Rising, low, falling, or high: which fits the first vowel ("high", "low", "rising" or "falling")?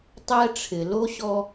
high